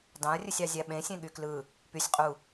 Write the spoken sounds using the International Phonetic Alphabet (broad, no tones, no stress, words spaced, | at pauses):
dɑ̃ɐ̯rʲɯsʲɑ zʲæɓẽsʲẽ ɠyklɯ | pysʲ qʼu